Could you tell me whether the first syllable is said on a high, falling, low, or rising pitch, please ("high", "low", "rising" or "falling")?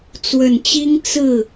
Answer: low